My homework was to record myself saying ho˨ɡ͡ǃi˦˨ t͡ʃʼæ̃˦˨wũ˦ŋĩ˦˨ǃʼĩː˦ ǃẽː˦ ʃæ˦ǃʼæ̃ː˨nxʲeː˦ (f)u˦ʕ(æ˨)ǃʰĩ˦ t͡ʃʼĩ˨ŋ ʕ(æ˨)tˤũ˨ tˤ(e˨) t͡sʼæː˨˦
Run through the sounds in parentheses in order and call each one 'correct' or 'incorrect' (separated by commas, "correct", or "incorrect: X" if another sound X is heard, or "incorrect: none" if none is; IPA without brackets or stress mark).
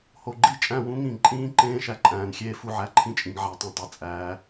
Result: correct, incorrect: æ˦, correct, correct